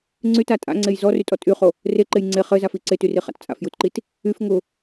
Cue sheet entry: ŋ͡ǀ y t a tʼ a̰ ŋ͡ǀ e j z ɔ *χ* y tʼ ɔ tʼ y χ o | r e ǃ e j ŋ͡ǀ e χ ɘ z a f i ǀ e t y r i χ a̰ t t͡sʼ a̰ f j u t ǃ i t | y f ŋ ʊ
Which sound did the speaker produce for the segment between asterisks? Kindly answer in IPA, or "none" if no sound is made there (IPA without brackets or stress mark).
r